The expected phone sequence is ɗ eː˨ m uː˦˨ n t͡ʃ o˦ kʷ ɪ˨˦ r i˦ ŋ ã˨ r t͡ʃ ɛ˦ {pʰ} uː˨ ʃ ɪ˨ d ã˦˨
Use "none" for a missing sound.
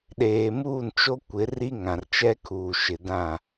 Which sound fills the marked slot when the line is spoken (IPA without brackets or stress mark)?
kʰ